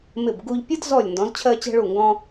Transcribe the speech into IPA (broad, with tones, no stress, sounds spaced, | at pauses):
m ɪ˧˩ b ɡ u˧ ʎ pʲ ə˥ d z ɔ˧˩ lʲ n d ɔ̃˩˧ z t͡ɕʰ ɜ˧ t͡ɕ ɛ̤˧ ɭ u˧˩ ŋ ɡ ɔ̃˧